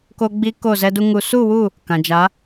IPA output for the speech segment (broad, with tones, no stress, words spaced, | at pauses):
ko˧ɡ͡bi˧ ko˦˨zɛ˦du˦ŋu˧ su˦˨wu˦˨ | kã˨d͡ʒa˨˦